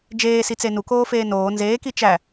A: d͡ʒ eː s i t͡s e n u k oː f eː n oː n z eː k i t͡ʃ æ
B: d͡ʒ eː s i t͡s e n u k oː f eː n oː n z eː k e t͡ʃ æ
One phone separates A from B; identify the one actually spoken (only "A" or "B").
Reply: A